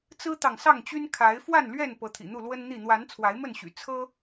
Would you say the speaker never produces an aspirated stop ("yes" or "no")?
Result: no